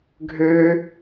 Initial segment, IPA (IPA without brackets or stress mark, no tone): ɡʱ